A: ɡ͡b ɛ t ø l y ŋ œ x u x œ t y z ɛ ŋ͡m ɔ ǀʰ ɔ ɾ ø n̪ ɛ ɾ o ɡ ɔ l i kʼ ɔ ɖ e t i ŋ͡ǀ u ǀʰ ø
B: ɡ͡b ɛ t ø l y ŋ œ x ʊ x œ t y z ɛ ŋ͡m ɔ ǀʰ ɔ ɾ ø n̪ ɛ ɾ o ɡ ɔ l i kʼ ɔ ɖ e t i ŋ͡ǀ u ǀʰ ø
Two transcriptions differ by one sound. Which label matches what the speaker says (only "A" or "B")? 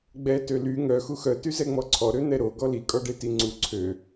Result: A